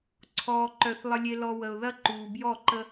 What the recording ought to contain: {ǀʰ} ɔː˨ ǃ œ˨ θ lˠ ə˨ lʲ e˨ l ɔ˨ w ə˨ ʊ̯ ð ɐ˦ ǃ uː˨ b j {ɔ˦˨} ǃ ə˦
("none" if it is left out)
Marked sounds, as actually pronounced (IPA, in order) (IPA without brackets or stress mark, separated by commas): ǀʰ, ɔ˦˨